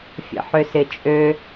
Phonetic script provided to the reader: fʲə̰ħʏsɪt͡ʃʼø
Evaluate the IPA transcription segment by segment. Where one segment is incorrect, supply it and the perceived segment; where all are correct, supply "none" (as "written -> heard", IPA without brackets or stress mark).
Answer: none